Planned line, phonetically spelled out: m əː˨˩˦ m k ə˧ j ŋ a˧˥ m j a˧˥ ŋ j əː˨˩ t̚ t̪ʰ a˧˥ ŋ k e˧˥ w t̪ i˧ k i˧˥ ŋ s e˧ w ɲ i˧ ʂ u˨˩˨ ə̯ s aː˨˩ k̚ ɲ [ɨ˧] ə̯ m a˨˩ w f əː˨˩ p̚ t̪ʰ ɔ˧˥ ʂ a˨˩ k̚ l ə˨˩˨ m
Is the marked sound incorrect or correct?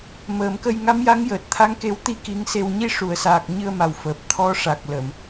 correct